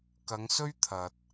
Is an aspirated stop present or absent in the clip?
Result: present